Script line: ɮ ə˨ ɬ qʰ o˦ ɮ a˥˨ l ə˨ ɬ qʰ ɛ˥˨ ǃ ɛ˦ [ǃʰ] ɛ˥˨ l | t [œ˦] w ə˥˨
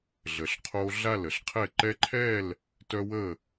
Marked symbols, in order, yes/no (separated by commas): yes, yes